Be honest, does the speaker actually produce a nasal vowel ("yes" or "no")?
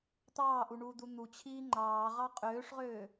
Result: no